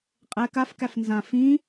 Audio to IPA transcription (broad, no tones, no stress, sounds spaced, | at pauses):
qʼ ɛ k a f k æ f n z ã f ĩ